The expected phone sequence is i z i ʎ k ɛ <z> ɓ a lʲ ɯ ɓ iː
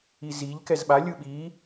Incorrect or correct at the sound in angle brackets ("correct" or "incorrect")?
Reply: correct